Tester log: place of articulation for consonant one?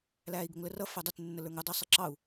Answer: alveolar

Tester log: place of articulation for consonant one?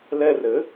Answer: alveolar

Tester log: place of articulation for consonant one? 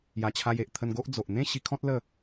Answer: palatal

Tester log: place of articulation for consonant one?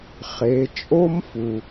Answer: uvular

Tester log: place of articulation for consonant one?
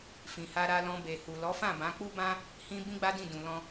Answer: labial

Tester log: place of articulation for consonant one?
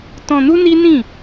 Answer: alveolar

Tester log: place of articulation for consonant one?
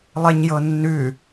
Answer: alveolar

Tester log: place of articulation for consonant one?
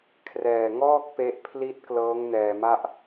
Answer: velar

